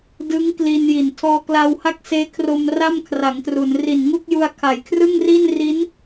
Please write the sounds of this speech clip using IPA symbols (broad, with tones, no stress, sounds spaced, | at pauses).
d ɯ˦˥ ŋ k l i˧ n j i˨˩ n tʰ ɔː˧ k l a˧ w h a˥˩ k̚ s eː˦˥ kʰ r o˧ m r a˥˩ m kʰ r a˩˦ ŋ t r u˩˦ n r i˨˩ n ŋ u˥˩ k̚ j u˧ a̯ kʰ a˩˦ j kʰ r ɯ˥˩ ŋ r i˥˩ n r i˦˥ n